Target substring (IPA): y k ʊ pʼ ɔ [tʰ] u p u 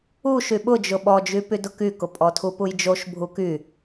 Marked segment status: correct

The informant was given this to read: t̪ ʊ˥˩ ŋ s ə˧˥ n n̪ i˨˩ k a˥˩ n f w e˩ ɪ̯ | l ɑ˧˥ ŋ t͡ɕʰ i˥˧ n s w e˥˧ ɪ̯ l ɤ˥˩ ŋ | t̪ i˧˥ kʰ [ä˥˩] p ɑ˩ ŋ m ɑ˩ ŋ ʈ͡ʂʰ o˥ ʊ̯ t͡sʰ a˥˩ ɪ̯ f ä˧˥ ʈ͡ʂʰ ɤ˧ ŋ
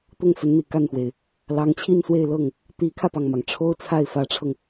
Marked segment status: incorrect: ä˧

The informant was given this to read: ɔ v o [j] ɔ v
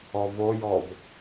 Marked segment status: correct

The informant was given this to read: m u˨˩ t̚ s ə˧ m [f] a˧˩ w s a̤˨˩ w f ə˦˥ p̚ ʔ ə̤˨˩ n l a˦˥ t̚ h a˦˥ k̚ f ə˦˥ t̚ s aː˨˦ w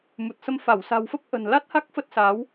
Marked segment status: correct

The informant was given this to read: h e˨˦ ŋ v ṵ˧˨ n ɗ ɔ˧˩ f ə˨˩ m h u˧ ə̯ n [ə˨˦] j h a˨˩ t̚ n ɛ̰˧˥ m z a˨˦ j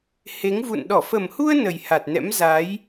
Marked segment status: incorrect: ə˨˩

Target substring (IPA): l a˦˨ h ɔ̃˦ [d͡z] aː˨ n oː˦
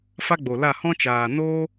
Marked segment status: incorrect: t͡ʃ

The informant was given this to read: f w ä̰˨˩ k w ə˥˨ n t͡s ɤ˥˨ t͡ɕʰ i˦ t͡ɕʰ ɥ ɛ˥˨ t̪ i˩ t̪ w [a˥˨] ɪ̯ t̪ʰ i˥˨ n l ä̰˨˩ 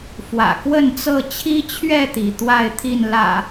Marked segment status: correct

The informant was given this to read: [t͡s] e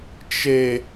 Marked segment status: incorrect: t͡ʃ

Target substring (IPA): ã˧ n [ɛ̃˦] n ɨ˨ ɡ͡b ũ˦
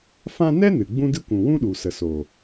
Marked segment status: incorrect: ɛ˦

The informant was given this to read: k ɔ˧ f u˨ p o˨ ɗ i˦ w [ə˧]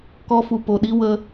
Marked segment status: correct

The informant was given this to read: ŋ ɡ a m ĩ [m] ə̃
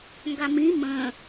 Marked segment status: correct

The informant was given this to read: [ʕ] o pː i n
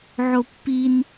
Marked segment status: correct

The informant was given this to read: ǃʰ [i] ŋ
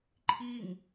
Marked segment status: correct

